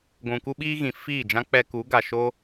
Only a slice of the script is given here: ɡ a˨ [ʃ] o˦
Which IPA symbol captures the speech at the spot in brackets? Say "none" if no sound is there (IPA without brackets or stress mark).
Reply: ʃ